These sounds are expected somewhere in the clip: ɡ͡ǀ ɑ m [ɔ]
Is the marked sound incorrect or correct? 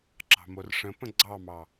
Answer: incorrect